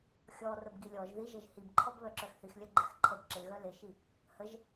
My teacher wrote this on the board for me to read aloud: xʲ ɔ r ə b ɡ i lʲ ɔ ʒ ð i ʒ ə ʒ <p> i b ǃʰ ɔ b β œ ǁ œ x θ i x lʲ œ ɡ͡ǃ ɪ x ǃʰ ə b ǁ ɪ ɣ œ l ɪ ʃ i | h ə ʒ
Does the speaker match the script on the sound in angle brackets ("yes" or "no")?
no